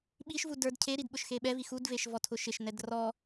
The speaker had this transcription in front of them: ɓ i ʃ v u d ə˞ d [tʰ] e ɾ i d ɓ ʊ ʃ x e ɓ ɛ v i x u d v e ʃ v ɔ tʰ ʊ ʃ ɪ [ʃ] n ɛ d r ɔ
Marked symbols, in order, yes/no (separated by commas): no, yes